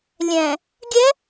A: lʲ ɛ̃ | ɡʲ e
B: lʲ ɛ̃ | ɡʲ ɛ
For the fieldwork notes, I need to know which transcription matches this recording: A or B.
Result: B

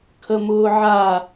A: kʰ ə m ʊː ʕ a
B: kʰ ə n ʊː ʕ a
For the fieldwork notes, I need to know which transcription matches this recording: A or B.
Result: A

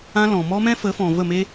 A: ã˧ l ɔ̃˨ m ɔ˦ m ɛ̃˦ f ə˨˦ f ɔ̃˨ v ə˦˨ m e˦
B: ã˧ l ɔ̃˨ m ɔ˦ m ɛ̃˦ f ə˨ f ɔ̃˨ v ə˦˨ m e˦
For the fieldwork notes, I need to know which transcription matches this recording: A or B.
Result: A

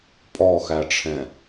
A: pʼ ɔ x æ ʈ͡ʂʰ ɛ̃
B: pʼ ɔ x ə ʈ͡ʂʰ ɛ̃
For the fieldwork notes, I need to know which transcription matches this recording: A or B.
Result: A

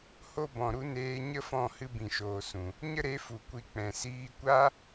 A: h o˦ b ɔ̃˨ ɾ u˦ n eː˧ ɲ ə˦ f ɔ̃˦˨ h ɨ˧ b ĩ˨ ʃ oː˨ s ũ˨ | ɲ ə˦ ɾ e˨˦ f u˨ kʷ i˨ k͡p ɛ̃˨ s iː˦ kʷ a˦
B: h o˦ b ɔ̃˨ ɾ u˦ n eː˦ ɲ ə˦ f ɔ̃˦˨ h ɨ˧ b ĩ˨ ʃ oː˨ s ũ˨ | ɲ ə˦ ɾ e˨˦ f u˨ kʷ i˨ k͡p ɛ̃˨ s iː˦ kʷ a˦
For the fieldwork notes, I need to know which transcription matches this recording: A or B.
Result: A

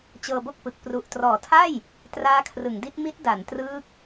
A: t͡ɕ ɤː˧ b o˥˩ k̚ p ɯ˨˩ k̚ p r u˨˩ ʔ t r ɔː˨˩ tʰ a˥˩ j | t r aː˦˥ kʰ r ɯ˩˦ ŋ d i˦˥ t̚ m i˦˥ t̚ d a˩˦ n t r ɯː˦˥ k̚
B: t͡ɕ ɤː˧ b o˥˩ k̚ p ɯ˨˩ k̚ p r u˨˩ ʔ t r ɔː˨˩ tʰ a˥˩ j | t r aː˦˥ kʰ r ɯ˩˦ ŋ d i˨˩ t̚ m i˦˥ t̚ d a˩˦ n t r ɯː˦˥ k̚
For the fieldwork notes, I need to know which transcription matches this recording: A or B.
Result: A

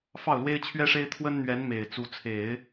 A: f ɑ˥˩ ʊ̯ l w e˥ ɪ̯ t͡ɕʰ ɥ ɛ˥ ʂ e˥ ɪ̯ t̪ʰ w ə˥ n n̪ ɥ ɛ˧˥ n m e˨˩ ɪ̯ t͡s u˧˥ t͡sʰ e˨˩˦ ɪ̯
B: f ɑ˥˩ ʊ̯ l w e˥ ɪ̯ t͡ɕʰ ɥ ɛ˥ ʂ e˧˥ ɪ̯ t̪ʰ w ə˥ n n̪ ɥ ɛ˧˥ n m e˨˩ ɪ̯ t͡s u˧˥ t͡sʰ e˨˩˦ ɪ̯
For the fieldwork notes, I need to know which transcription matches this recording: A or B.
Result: A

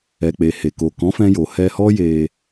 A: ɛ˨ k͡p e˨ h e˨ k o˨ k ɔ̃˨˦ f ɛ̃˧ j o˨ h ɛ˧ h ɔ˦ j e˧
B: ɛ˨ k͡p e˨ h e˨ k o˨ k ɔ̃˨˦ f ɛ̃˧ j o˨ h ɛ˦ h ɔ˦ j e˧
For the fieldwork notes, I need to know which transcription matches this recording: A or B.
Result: A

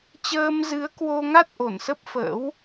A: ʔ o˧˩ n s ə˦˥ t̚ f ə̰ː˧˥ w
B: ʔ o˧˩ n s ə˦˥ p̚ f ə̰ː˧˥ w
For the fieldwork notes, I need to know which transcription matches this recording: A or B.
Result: B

